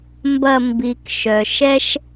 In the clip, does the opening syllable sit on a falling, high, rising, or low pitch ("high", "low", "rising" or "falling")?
low